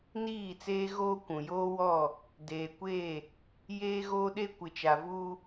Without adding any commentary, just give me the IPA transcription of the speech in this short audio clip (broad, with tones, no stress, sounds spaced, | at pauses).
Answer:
n iː˦˨ t͡s eː˦ ɣ oː˦ kʷ ũ˨ j oː˦ w ɔ˦˨ | d eː˨ kʷ eː˦˨ | j eː˦ ɣ oː˦ ɗ e˦ kʷ ɪ˨ t͡ʃ a˨ v uː˦